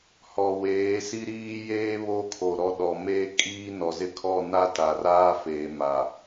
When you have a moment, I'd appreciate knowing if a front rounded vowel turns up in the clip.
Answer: no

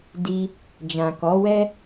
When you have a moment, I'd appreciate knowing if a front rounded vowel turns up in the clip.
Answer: no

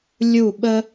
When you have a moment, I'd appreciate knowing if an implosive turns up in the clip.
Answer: yes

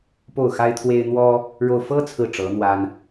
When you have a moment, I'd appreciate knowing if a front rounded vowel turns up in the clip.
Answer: no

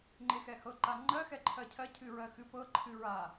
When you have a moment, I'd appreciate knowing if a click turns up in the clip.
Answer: yes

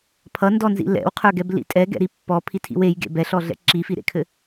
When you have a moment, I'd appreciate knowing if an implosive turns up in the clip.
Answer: no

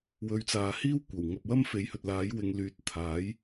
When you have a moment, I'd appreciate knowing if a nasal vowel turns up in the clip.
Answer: no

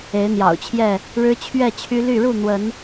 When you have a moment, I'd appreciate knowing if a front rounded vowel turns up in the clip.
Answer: yes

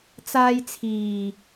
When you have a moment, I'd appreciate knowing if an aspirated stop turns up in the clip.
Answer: yes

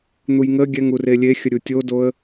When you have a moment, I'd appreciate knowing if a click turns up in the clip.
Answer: no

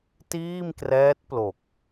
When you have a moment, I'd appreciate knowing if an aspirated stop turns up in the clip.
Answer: no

